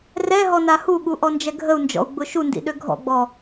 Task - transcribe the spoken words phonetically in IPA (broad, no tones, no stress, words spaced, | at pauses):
rɛɦɔ nahuɠu ʔɔnd͡ʒɛɡʱəu̯nd͡ʒɔ̰u̯ ɡ͡bʊʃundḭ ɗøɡʱɔ̰ɡ͡bɔ